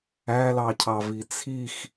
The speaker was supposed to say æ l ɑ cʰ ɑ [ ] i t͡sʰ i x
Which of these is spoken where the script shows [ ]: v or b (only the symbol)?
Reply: v